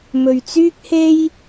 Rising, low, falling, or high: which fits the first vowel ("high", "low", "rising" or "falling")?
low